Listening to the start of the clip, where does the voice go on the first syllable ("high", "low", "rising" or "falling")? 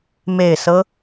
low